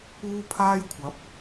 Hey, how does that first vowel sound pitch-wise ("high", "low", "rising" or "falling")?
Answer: high